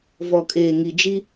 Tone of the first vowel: low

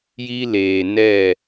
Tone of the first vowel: high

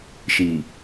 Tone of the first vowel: low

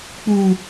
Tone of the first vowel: high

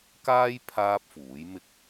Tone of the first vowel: high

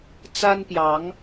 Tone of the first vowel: high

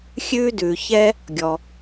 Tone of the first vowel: high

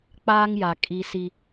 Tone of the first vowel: high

